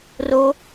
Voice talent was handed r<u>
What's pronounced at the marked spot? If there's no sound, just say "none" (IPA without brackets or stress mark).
o